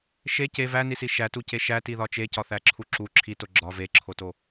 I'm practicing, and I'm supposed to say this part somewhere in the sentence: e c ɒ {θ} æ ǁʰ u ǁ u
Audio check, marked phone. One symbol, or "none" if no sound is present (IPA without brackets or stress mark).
θ